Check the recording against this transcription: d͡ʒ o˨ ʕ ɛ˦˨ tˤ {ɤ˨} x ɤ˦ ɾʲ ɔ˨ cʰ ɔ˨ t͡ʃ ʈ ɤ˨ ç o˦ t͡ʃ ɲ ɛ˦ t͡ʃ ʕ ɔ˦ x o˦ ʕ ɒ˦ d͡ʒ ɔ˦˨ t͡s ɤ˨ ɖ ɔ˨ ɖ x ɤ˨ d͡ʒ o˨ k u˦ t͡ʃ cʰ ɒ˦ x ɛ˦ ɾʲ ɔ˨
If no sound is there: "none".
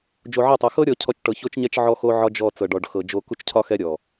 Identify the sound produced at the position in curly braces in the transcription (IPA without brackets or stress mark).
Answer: ɤ˨